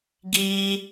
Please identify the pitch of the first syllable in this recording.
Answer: high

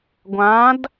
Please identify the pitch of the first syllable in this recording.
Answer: rising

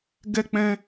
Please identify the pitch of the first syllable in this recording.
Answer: high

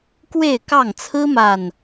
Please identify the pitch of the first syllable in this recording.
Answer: falling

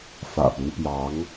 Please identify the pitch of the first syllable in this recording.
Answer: low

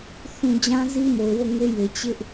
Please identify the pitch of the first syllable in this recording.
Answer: low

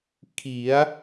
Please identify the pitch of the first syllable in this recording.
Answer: rising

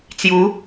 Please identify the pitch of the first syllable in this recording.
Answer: rising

